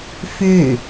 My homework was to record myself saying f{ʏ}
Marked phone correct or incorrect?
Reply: correct